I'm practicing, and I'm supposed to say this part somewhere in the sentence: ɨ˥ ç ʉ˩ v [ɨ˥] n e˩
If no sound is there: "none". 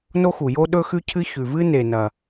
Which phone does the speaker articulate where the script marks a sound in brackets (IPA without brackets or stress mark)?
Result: ɨ˥